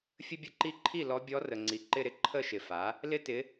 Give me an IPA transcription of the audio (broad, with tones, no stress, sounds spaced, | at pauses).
fʲ ə˥ bʲ ə˥˧ ǃ i˥ ǃʰ i˥˩ l ɔ˧˥ bʲ ɔ˧˥ r ə˨ ŋ͡ǀ i˨ ǃ ɪ˥˧ ɾ ɪ˥˧ ǃʰ ə˥˧ ʃ ɪ˨ f a˩˥ | l ɪ˥ t ɪ˧˥